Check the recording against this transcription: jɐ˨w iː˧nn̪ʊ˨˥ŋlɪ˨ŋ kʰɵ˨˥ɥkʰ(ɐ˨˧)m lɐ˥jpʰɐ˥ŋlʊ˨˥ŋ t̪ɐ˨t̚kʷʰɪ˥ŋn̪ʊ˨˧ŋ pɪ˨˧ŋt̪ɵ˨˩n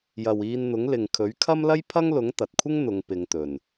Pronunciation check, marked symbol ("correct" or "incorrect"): incorrect